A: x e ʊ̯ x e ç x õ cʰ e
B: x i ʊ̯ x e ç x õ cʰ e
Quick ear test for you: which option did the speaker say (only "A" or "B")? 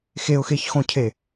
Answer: A